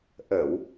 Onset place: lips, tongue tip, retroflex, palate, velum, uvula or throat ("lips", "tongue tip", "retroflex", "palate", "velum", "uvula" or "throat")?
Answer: throat